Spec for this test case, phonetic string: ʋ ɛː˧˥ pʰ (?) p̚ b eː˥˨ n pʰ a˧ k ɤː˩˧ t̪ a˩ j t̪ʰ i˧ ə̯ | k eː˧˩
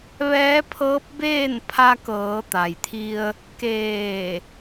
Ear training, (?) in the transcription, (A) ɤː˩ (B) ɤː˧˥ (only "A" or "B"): B